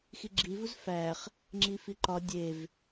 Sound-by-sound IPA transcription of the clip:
x i ɡ͡ǁ i v u z f æ χ | ŋ͡ǁ i f i ǃ ɒ dʲ e v

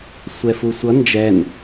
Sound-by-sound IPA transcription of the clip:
sʷ ɛ f u sʷ ʌ n d͡ʒ ɛ n

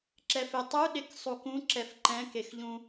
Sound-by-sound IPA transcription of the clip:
ǁ ɛ f e tˤ u ɗ e k sˤ u k ũ ǁ ɛ f ǃ ɛ̃ k e x ʎ ũ

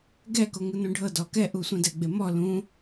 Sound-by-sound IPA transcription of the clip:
ɡ ɛ k o ŋ ɯ n ũ ɖʱ ɤ d ɔ k ɛ ʔ u sʷ ĩ d ɛ ɡ͡b e m ɔ l ũ

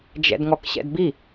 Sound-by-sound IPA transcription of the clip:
d͡ʒ ɛ̰ d ŋ ɔ k ɕ ɛ̰ d b i

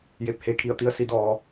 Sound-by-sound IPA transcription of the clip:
j e˧˩ p̚ h e˧˥ kʰ i˧˩ ə̯ t̪ i˧˥ ə̯ s i˧˥ d ɔː˧

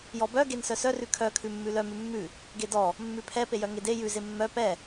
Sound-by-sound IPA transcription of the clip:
j ɔ b œ ɡ e n s œ s œ r ʉ kʰ œ kʰ ʉ mː ʉ l œ m ʉ mː ʉ | ɡ e d ɔ | mː ʉ pʰ ɛ p e j œ ŋ e d e j ʉ z e mː œ p ɛ

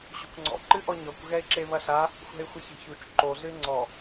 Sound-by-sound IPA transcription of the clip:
ɕ o̤ kʷ ŋ͡ǀ ɔ̰ ǃ ɨ ʔ ɔ ɲ ɔ kʷ ɣ ɛ ɪ̯ ǁ e β ɐ ɬ a | xʷ ɛ̤ ɪ̯ xʷ ɘ ç ɛ̤ ç u t͡ʃ ǃ o ɮ ɨ ɪ̯ ŋ͡ǀ ɔ

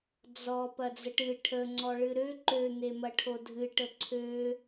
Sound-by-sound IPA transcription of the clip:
d͡z ɔ p ɐ d͡z ə ʈ ɨ ʈʰ ə ŋ͡ǀ ɔ ɭ ɨ ɾ ø ǃ ø n̪ e m ɐ ʈʰ o dʱ ɨ ʈ ə ǀʰ ø

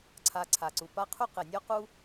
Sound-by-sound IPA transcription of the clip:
ǀʰ a˨ ǀʰ a˩ ǀ u˩ p a˦ qʰ u˥ q ɘ˩ nʲ ɔ˥ q u˦

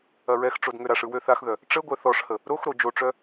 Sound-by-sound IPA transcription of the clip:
ɐ ɹ ɛ x ʈ͡ʂ o d ŋ ø ɾ a ʂ ɯ w ø θ a x ð œ | ʈ͡ʂ ə ɡʷ œ θ ɔ ʂ h ə | ɾ o x ɾ o d͡ʒ o ʈ͡ʂ œ

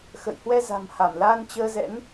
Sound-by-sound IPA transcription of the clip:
x ə̰˧˨ j h w ɛ˧ z a̤˨˩ m h a˧˩ m l aː˧ n t͡ɕ əː˧ z ɛ̰˧˥ n

